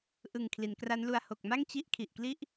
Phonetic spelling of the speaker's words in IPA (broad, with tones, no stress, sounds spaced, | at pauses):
ʔ ɯ˨˩ ŋ kʰ l i˩˦ n k r a˦˥ n l u˧ a̯ h o˨˩ k̚ m a˥˩ ŋ t͡ɕ i˥˩ ʔ kʰ i˨˩ ʔ k l i˥˩ ʔ